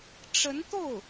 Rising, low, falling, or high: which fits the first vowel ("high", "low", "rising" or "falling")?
rising